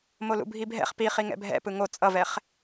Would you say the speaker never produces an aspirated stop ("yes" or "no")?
yes